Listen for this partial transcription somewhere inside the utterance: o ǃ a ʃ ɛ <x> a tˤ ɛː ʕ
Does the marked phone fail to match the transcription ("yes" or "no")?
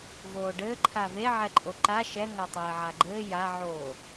yes